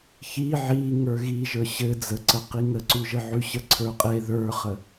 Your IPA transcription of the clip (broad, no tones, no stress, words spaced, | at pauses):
çi ʕiŋə˞ ɣiʒə˞ ɕɘ d͡zəǀəqi ŋəǀʉʒə ʕʉɕəǀʰə˞qʼe ðə˞χə